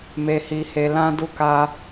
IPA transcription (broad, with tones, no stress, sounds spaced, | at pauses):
m e˦ h i˦ h e˦ l ã˦ d u˦ k a˦